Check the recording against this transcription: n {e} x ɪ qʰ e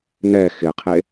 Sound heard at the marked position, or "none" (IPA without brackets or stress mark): ɛ